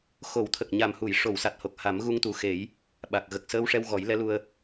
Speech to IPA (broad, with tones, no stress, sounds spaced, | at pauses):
x o˨˩˦ w t̪ʰ ə˨˩ k̚ ɲ a˨˩ m h u˨˩˨ j ʂ o˨˩˨ w s a˨˩ t̚ h o˨˩ k̚ h a˨˩˦ m ɣ u˧ ŋ t̪ u˨˩ x e˨˩˦ j | ɓ a˨˩ k̚ ɣ ə˨˩ k̚ s əː˧ w ʂ ɛ˧ w ɣ ɔ˨˩˦ j l ɛ˧˥ l u˧ ə̯